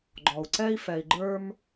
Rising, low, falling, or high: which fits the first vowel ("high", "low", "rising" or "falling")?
low